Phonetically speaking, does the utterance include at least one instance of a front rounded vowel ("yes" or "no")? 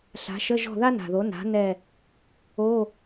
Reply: no